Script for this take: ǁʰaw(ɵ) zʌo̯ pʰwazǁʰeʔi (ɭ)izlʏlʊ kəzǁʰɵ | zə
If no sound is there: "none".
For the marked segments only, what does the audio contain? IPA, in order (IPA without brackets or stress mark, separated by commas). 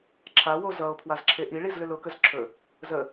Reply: o, ɭ